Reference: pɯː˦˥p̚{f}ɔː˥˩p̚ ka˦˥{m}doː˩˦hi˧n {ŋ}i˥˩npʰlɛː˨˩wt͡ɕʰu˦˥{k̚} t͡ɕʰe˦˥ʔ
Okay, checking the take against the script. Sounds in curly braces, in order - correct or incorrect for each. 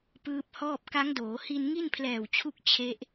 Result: incorrect: h, incorrect: ŋ, correct, correct

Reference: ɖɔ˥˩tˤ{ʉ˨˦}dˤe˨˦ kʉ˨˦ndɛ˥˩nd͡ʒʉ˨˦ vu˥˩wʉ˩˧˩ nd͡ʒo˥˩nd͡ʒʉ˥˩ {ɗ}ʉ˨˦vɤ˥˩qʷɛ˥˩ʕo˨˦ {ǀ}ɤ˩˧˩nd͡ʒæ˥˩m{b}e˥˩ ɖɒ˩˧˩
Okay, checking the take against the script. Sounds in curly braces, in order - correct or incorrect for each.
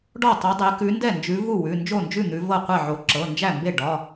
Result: correct, incorrect: n̪, incorrect: ǁ, correct

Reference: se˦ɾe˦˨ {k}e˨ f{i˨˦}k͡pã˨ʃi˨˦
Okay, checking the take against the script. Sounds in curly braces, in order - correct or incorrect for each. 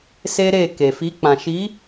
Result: correct, correct

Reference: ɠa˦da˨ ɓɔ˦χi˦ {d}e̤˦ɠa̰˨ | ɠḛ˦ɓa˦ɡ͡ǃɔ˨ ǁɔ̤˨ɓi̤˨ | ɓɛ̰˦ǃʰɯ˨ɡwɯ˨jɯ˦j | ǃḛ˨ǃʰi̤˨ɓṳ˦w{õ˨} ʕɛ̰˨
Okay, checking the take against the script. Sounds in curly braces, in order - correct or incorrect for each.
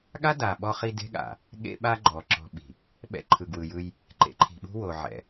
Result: correct, incorrect: o˨

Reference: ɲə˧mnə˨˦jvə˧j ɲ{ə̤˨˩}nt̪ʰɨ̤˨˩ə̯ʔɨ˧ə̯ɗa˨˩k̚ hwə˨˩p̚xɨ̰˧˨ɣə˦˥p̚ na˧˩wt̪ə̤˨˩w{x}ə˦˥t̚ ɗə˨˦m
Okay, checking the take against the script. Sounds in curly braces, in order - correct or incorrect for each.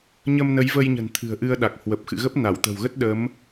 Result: correct, incorrect: ɣ

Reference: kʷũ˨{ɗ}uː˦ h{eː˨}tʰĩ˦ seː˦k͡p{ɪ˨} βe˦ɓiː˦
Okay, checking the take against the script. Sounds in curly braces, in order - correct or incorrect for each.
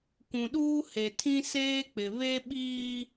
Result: correct, incorrect: e˨, correct

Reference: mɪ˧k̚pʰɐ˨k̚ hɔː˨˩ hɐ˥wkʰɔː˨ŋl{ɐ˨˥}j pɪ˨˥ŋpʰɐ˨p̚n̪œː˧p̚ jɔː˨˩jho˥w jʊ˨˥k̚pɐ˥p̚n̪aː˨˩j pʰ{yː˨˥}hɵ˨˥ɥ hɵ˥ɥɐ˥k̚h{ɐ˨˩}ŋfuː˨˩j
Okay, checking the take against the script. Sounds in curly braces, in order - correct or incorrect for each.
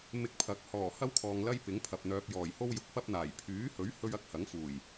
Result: incorrect: ɐ˥, correct, incorrect: ɐ˨˥

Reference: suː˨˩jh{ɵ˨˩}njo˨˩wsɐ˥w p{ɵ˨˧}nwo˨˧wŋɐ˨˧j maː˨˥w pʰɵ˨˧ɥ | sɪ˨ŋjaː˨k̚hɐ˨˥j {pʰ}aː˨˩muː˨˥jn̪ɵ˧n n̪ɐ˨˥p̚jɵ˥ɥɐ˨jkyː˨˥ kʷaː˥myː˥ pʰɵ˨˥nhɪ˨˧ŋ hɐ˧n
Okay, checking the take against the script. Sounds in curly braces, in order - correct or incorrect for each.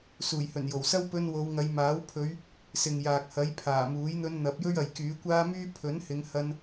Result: correct, incorrect: ɵ˧, correct

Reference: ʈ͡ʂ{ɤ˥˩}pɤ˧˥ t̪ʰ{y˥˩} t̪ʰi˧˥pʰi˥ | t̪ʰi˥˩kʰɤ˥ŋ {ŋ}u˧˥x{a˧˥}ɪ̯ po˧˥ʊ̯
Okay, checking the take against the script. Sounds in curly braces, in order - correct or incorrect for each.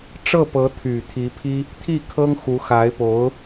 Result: correct, incorrect: y˨˩, incorrect: x, correct

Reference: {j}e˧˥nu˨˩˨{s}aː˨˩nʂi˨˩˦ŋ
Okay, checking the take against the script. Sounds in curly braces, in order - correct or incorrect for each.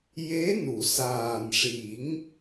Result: correct, correct

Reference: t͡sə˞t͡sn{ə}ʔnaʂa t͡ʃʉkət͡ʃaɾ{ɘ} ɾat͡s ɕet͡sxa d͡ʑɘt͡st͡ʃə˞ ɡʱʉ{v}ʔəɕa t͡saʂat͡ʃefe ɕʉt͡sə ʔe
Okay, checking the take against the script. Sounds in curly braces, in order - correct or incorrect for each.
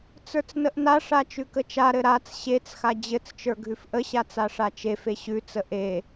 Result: correct, correct, incorrect: f

